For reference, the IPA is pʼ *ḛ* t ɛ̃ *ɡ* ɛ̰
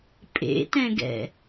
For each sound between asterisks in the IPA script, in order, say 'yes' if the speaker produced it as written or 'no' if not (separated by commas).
yes, yes